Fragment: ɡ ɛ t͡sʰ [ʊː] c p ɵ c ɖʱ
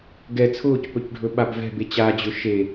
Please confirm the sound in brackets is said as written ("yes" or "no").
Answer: yes